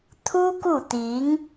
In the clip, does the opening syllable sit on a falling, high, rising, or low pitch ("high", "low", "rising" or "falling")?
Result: high